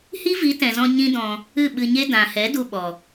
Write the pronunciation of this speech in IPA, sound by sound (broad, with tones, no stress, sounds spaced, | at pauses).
h i˦ v i˨˦ t ɛ̃˨ z ɔ̃˧ ɲ ĩ˦ d ɔ̃˧ | ɨ˦˨ ɓ ɨ˧ ɲ e˦ d ã˨ h ɛ˨˦ d u˧ ɓ ɔ˨